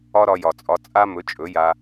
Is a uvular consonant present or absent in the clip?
absent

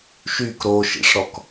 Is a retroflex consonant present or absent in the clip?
present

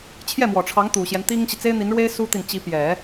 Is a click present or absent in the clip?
absent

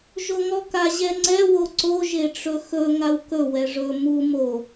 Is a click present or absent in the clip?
present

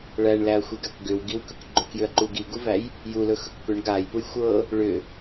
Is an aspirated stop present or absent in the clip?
absent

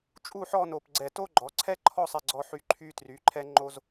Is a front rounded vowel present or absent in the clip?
present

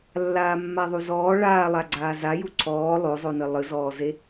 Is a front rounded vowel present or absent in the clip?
absent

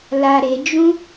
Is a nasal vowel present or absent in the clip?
present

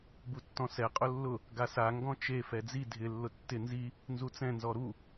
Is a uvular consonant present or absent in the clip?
present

